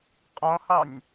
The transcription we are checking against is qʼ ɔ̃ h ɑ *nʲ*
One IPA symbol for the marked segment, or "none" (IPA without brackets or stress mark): nʲ